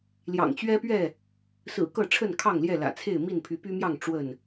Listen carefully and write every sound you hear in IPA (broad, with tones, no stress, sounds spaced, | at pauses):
l j ɑ̰˨˩ ŋ t͡ɕ ɥ ɛ˦ p ɥ ɛ˥˨ | s ɹ̩˨˩ k ɤ˥˨ ʈ͡ʂʰ ə˥˨ n kʰ ɑ˥˨ ŋ l j ɛ˥˨ l ä̰˨˩ t͡sʰ e˥˨ ɪ̯ m i˥˨ n pʰ y˨˦ p y˦ m j ɑ˥˨ ŋ ʈ͡ʂ w ə˥˨ n